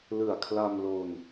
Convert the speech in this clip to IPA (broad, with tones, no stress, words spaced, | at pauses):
lɯ˨˩a̯kʰla˧m lo˧n